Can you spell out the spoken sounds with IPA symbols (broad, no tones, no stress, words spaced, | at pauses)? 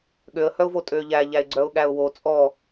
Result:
ɠøə̯hœʊ̯vo tʼøʎæʎæɪ̯ ɡ͡ǀœʊ̯ɠæʊ̯wo t͡sʼɔ